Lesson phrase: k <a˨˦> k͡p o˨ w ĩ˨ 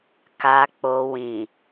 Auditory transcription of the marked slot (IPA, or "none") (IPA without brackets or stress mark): a˨